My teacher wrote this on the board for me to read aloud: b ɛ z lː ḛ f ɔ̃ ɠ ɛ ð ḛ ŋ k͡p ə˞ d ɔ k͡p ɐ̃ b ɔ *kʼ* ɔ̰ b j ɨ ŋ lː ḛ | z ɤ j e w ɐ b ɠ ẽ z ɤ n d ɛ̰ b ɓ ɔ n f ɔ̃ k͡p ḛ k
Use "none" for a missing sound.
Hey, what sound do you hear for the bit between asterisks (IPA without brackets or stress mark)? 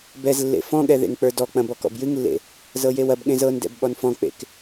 k